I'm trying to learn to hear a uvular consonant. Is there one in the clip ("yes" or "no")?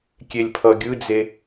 no